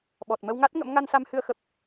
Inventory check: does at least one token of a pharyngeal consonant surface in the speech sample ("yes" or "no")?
no